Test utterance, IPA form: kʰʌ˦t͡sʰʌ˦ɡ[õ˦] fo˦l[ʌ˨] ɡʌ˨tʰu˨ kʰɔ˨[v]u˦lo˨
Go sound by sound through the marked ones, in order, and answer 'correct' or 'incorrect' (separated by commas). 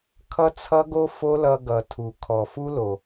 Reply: incorrect, incorrect, incorrect